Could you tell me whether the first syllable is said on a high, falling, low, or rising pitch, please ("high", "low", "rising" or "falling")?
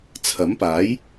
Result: rising